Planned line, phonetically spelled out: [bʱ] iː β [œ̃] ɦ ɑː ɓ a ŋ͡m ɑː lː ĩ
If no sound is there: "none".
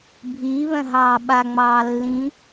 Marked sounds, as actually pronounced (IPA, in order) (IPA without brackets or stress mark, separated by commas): bʱ, œ̃